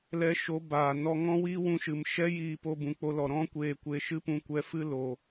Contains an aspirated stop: no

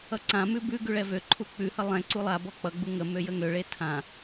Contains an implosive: no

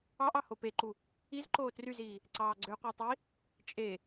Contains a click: yes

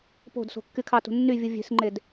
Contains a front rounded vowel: yes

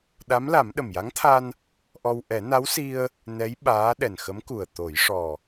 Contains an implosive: yes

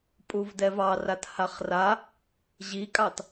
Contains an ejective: yes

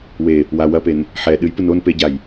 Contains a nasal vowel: no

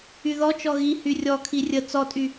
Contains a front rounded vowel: yes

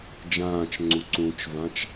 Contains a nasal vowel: yes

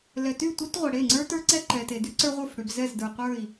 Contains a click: yes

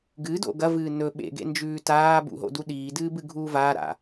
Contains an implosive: yes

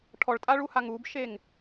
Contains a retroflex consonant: yes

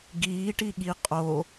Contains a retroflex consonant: yes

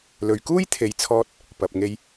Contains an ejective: no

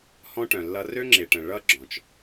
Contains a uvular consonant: no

